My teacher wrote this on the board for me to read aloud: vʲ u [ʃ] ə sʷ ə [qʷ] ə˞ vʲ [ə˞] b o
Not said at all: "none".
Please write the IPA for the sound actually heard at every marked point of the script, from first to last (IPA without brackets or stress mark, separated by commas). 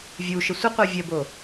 ʃ, qʷ, ə